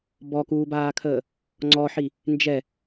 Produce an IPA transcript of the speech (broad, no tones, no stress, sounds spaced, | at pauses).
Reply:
b ɔ k uː b aː kʰ əː | ŋ͡ǀ ɔ ħ i | n d͡ʒ ɛ